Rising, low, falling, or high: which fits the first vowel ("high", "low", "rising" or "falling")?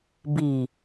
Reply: low